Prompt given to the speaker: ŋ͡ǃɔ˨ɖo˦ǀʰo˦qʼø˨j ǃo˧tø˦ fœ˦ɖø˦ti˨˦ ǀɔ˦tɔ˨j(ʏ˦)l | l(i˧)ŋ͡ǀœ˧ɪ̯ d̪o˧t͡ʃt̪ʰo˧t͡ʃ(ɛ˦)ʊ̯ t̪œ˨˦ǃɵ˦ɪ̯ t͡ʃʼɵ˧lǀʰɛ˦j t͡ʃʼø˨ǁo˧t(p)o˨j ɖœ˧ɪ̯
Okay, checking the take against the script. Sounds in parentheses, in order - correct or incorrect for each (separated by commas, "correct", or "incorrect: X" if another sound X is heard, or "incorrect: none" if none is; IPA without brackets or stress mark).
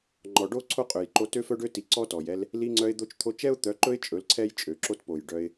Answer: incorrect: ɛ˦, correct, correct, correct